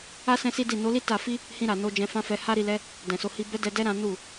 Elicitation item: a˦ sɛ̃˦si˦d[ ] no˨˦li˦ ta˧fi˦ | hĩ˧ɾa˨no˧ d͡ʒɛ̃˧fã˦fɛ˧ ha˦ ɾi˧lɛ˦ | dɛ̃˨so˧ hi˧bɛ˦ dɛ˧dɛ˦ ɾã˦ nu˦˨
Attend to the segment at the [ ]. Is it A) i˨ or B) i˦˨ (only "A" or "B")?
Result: B